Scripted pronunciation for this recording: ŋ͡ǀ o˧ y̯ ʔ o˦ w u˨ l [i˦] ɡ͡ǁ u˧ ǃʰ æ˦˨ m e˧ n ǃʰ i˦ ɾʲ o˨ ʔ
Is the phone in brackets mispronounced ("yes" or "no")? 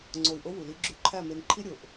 no